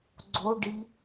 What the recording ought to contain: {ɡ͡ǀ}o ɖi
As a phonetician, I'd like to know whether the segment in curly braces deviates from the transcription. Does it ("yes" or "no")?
no